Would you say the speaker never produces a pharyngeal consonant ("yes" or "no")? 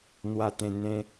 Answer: yes